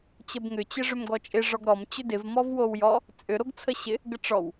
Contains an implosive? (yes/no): no